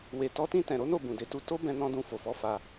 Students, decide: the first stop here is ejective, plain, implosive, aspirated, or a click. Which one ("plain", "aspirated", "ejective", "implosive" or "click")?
plain